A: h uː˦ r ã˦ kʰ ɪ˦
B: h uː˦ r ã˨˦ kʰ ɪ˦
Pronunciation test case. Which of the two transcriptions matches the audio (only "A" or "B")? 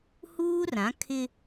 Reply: B